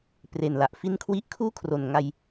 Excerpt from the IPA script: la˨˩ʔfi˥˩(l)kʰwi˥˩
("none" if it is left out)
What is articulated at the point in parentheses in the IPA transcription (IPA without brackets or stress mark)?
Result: n